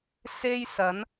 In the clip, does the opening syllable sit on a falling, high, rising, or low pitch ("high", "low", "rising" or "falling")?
high